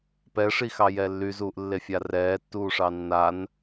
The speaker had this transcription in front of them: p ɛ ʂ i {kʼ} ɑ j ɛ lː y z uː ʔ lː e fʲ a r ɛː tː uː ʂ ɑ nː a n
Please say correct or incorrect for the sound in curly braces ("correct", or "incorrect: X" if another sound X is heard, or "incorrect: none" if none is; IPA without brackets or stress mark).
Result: incorrect: x